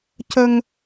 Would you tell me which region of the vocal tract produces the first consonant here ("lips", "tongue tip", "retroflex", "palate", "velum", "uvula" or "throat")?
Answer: palate